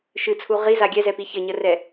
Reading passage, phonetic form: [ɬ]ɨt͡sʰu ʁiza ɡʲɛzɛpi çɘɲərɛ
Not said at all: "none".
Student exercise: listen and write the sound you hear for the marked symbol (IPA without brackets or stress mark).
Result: ʃ